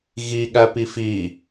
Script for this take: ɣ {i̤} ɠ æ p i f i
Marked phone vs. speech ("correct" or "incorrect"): incorrect